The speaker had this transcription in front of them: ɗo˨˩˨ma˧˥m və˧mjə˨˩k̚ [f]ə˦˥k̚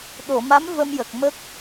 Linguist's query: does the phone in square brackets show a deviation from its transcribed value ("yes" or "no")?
yes